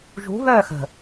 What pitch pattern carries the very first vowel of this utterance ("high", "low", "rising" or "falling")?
rising